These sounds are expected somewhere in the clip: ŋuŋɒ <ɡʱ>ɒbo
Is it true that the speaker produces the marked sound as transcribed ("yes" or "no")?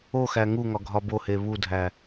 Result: yes